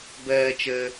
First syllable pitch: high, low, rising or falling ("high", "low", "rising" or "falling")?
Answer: high